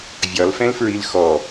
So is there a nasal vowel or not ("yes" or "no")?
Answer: yes